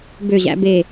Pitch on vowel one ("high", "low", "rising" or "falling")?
falling